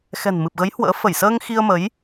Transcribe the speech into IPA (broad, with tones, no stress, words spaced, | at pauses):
xɛ̤˨˩nmɨ˨˩p̚ɣə˨˦j hwə̰ː˧˥ fə˧˩jsəː˧ŋ xi˧ə̯ mə˨˦j